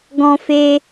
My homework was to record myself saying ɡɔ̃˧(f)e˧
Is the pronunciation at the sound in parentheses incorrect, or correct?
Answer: correct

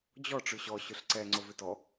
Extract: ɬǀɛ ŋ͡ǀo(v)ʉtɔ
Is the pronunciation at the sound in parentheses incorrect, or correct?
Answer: correct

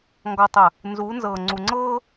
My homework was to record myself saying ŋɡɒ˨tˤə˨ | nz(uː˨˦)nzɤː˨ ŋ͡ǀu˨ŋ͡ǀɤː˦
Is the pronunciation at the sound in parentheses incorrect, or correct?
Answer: correct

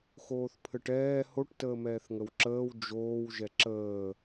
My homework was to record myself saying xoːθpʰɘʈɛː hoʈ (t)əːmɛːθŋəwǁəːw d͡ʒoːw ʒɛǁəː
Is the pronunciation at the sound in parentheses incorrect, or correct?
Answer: correct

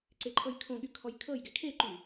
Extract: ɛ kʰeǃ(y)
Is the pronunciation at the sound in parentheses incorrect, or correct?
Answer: correct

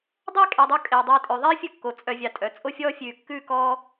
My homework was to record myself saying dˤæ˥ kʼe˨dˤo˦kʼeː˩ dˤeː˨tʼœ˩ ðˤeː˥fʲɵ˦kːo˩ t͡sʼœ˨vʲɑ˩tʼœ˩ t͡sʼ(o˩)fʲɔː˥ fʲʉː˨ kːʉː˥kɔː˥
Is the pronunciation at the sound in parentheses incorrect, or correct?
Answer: incorrect: o˥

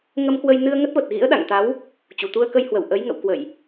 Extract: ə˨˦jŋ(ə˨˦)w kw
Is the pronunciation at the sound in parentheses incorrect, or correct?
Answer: incorrect: ə̰˧˨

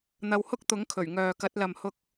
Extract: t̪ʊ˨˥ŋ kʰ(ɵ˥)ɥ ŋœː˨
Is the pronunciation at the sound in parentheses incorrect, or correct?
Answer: incorrect: ɵ˨˩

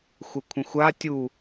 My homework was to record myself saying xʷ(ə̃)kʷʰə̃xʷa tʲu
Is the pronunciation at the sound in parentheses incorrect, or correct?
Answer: incorrect: ə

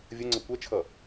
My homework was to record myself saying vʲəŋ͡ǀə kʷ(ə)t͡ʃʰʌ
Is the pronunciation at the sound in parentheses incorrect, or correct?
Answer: incorrect: ɛ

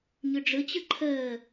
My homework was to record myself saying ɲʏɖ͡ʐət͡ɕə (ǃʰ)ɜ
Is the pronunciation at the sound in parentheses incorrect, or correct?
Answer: correct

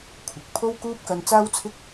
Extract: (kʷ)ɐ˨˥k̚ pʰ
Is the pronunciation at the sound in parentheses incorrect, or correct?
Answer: incorrect: kʷʰ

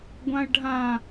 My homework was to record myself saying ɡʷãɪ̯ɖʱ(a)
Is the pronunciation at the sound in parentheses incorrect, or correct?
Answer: incorrect: ã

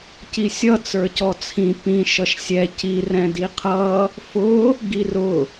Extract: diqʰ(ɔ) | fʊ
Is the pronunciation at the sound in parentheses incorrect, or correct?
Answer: incorrect: ʌ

